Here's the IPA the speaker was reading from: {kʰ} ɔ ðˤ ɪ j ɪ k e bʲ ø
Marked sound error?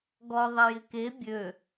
yes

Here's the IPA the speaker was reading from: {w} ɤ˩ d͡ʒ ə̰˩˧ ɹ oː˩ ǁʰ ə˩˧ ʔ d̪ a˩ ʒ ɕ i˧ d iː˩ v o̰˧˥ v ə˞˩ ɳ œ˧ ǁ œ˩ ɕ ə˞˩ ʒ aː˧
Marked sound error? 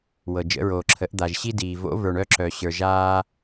no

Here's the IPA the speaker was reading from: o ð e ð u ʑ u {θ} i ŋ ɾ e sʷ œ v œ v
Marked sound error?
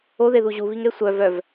yes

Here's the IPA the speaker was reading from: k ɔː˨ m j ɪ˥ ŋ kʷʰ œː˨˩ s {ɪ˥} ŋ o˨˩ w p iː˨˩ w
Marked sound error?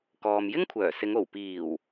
yes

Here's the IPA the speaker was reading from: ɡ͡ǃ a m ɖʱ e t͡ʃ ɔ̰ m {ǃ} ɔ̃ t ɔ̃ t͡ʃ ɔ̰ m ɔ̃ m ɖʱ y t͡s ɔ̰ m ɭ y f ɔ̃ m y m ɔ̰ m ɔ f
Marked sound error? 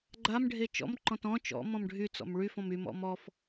no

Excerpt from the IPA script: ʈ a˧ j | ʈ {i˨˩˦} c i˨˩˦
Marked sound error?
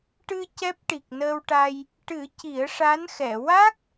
yes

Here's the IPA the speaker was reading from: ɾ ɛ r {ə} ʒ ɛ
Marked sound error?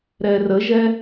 no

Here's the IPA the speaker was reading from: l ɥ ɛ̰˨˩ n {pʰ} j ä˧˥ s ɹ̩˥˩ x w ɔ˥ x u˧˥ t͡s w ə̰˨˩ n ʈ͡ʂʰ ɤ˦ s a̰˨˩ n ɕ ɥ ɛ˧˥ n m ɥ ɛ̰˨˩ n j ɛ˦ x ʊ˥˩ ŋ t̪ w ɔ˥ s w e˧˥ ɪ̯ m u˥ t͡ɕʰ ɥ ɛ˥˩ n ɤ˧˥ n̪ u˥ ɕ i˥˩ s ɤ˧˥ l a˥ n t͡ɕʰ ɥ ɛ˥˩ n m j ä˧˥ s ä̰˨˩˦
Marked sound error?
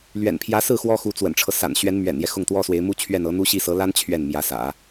no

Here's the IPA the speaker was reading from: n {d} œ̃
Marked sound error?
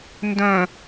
no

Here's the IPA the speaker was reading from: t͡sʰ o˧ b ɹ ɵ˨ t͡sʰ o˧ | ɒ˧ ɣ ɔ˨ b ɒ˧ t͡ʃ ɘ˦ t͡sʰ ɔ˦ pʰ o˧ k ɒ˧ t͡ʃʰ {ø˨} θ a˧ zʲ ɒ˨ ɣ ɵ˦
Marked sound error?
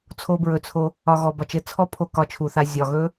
yes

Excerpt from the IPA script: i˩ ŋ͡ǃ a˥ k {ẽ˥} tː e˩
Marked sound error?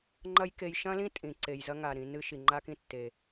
yes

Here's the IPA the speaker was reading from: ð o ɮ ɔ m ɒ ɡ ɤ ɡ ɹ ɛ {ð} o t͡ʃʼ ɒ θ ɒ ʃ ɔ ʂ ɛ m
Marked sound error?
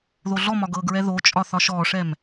no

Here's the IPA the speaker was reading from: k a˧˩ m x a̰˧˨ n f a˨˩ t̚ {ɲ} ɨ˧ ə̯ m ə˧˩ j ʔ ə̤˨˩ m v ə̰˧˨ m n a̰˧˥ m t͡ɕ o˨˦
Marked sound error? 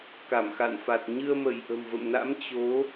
no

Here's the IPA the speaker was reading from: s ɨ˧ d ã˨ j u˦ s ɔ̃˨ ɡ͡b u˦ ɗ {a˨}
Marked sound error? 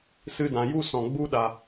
no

